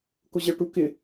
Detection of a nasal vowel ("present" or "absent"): absent